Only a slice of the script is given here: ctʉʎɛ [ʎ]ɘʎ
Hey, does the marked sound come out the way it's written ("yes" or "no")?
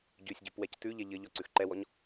yes